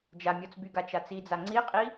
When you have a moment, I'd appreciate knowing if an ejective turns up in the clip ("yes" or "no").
yes